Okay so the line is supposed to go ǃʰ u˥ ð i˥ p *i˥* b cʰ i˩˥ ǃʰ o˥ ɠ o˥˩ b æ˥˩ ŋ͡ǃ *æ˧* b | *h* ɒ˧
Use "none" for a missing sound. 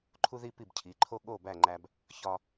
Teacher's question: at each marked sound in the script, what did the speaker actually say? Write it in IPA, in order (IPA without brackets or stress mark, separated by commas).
i˥˩, æ˧, ç